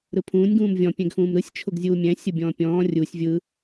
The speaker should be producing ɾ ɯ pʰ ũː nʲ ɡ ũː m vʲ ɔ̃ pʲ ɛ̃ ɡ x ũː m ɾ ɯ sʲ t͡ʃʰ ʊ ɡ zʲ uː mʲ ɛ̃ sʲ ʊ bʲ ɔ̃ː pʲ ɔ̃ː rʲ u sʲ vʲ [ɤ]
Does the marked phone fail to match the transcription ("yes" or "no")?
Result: yes